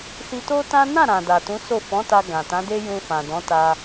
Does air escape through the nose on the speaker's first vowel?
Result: no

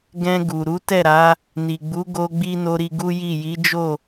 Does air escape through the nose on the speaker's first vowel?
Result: yes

